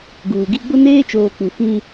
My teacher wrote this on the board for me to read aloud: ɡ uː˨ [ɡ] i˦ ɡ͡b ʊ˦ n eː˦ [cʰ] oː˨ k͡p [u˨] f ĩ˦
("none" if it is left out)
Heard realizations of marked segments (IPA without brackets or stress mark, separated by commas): ɡ, t͡ʃ, u˨